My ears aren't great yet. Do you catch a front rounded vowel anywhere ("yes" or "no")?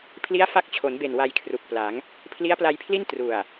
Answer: no